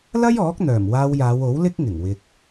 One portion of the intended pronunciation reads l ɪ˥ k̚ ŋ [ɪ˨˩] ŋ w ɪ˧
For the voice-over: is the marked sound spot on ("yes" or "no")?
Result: yes